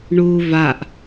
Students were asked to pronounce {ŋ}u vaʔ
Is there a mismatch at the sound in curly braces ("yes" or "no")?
yes